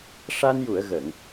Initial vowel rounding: unrounded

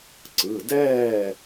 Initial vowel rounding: unrounded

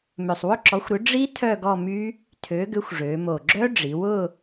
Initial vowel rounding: rounded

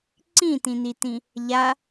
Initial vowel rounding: unrounded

